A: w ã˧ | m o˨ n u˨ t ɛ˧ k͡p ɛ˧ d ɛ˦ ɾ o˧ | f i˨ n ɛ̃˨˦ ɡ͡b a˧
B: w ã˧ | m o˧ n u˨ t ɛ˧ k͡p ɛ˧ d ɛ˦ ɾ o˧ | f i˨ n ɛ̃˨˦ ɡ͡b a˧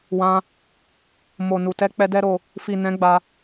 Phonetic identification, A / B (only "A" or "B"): A